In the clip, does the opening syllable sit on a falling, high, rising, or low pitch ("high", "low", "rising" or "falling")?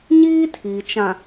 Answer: high